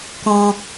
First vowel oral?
no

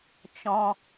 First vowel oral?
no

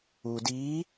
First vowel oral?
yes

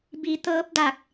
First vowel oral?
yes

